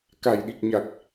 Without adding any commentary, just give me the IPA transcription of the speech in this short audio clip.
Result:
k a˨˩ j ɗ i˨˩ k̚ ɲ a˨˩ k̚

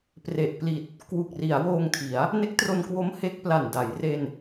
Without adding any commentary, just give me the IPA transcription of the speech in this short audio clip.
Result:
p r e˨˩ ʔ p l i˨˩ t̚ | k w u˨˩ k̚ r i˩˦ a̯ w oː˧ ŋ tʰ i˩˦ a̯ | n e˦˥ k̚ t r o˧ n k w o˦˥ m h e˦˥ k̚ p l a˨˩ n d a˩˦ j r e˧ n

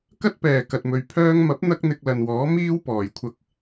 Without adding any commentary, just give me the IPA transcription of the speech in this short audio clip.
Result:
k ɐ˥ t̚ p ɛː˨˩ k ɐ˨ t̚ m ɵ˨ ɥ pʰ œː˥ ŋ m ɐ˨˥ p̚ n̪ ɐ˥ k̚ n̪ ɪ˧ k̚ l ɐ˨ n w ɔː˨˥ m iː˥ w p ɔː˨˩ j kʷʰ ɐ˧ k̚

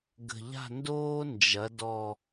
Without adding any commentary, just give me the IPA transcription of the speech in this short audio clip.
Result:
ɡ ə̤˨˩ ʎ a̤˦˨ n d oː˦ n d͡ʒ ɐ˩˧ d ɔ˨˩

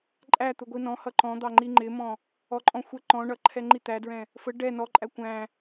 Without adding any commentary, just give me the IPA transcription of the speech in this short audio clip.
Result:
ǃʼ æ t̪ ʊ ɡʷ i n ɔ̃ h ʌ ǃ ɔ̃ d̪ ɑ ŋ͡ǃ i ŋ͡ǃ ɪ m ɔ̃ | ɔ ǃʼ ɔ̃ xʷ ɛ ǃ ɔ̃ ɳ ʌ ǃʰ ɛ ŋ͡ǃ i t̪ æ d ɹ ɛ̃ | f ə ɖ ɛ n ɔ ǃʼ æ kʷ æ̃

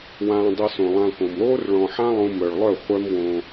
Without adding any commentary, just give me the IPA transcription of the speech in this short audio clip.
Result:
w ãː˧ dˤ ɘ˧ s õ˨ lˠ ã˧ k õ˨ m ɾ oː˦ r ɭ ɔ̃˨ ħ ã˦ lˠ õ˧ m œ˨ ɭ lˠ œ˦˨ χʷ œ˦ m w õ˧

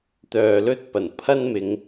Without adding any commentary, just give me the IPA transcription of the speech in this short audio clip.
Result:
t̪ œː˨ l ɵ˥ t̚ p ɐ˨˩ n pʰ ɐ˥ n m ɪ˨˧ ŋ

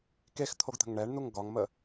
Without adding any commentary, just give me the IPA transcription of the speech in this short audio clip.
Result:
k e x t̪ʰ o ɡ t̪ ə̤ ŋ ɳ ɛ ɳ n̪ u ŋ ɡ ɒ ŋ m ə

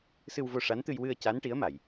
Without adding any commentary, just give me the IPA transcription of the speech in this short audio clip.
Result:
s ɨ˧ w v o˧ ʂ a˧˥ n t̪ ɨ˧ j w ɨ˧ ə̯ c a˧˥ n ʈ i˧˥ ə̯ m a˨˩˨ j

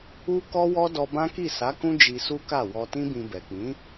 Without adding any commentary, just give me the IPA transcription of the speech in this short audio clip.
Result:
u˦ k ɔ˦ w ɔ˦ d ɔ˧ b ã˦ k i˦˨ s a˨˦ k ũ˦ d͡ʒ i˧ s u˦ k a˦˨ w ɔ˧ t ĩ˦ b ĩ˧ b ɛ˨ k͡p ĩ˨˦

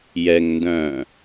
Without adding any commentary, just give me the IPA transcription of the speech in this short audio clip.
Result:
j ɛ ŋ n d œ̃ː

